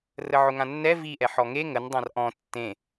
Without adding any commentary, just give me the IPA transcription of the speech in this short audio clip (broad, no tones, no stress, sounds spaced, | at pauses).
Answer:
r ə ʕ ʊ ŋ ã nː ɛ v i ʔ ɛ ħ ɔ ŋ e ŋ ə n dˤ ã r ʔ ɔ̃ tː ẽ